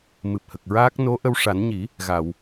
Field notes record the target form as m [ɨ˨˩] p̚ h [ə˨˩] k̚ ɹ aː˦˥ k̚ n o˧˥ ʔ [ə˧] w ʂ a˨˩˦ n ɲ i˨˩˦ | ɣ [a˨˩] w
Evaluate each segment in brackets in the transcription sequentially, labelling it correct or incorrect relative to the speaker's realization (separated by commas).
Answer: correct, correct, correct, incorrect